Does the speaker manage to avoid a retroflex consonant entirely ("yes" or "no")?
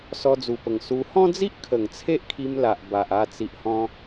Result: yes